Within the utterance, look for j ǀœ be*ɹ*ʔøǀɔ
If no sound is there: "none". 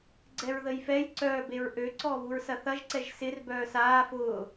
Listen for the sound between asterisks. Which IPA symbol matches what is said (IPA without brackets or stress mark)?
ɹ